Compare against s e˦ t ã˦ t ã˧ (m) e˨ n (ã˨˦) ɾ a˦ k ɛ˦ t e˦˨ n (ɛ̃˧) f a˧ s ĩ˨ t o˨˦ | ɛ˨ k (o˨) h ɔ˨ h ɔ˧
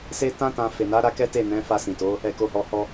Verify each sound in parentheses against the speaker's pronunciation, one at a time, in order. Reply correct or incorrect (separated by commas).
incorrect, incorrect, incorrect, correct